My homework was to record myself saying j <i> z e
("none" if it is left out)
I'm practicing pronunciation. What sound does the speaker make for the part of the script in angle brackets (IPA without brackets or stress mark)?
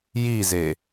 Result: i